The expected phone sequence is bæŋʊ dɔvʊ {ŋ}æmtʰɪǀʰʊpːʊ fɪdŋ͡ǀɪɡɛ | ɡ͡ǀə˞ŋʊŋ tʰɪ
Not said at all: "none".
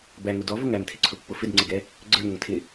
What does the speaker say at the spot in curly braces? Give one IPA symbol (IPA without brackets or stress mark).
ŋ